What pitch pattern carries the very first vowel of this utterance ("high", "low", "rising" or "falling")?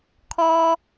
high